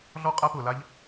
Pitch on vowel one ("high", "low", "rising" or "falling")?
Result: high